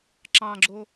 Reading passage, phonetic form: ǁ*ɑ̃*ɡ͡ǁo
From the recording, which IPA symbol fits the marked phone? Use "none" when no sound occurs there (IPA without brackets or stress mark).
ɑ̃